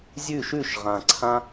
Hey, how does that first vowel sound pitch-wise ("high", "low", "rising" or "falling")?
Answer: falling